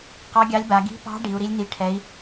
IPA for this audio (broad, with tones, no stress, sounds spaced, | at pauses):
q ɑ˧˥ ɡʲ ɑ˧˥ lʲ b a˩˧ ɡ i̤˧˥ p ɑ̤˧˥ ɖ i˩˧ u̯ ɾ i˧˥ lʲ n i˧˥ ʈʰ ɛ˧˥ i̯